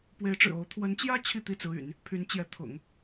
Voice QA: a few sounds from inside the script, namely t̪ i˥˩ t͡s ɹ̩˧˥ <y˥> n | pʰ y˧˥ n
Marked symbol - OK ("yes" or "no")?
no